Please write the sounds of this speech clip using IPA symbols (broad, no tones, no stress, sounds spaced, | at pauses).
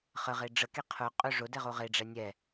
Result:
χ ə ʁ e ɖ͡ʐ ə k e qʰ ʊ qʼ ɵ ʐ ʊ d ɛ ʁ o ʁ e ɖ͡ʐ ɛ nʲ ɛ